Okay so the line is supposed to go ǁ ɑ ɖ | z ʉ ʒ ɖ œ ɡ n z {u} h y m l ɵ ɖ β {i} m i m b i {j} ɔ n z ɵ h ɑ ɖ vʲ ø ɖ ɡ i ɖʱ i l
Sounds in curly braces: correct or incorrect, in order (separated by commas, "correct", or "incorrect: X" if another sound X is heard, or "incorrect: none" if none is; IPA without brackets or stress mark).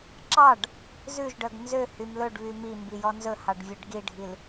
incorrect: ø, incorrect: y, correct